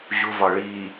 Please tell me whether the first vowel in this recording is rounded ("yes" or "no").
yes